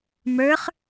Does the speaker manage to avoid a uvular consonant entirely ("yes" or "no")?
no